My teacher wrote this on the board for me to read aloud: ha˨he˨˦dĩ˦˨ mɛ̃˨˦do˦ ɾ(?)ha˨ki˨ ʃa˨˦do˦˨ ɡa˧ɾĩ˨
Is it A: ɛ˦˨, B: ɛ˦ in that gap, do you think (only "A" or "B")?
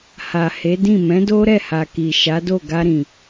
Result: A